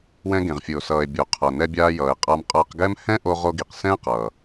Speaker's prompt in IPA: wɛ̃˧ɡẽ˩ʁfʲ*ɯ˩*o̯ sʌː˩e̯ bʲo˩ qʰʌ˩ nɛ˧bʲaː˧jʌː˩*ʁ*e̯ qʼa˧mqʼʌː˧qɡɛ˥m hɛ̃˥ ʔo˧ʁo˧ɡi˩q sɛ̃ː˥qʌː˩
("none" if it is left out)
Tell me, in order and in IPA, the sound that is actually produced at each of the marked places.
ɯ˩, none

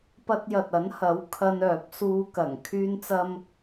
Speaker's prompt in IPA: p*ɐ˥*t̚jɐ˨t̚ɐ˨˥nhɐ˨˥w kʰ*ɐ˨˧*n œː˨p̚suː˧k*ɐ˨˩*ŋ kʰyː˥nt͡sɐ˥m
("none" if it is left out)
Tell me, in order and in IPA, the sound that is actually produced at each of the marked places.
ɐ˧, ɐ˧, ɐ˨˩

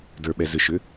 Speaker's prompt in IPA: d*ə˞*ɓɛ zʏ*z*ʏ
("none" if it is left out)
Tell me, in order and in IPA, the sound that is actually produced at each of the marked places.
ə˞, ʃ

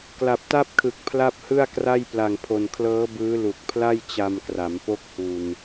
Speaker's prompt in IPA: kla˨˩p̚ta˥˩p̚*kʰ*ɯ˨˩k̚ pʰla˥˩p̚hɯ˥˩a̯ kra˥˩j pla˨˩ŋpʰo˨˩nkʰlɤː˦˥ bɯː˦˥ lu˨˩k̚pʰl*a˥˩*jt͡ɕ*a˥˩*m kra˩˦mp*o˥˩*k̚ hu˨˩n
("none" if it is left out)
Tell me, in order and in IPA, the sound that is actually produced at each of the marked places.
kʰ, a˥˩, a˧, o˦˥

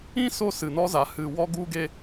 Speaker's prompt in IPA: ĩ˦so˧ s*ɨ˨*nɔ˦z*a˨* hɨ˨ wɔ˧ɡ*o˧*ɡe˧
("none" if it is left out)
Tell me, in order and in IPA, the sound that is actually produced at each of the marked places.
ɨ˨, a˨, u˧

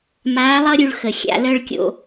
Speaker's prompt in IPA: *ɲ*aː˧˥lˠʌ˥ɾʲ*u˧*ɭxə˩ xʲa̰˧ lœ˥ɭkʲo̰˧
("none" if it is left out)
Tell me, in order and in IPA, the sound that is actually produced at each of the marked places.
m, u˧

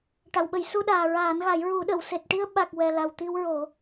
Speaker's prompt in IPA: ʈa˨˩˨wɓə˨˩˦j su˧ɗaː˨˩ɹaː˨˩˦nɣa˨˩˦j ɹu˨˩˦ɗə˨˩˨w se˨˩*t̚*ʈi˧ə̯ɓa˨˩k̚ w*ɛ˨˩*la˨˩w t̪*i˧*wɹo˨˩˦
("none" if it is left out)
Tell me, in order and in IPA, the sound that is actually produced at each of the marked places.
t̚, ɛ˨˩, i˧

